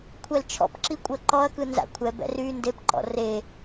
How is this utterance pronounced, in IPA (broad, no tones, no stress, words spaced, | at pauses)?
kʷʰɛlt͡ʃʰɔ̰pǁi kʷʼəːǃɔɐ̯kɯ nza̰kʷʰɛbɛ̰r yːndepǃɔ̰ re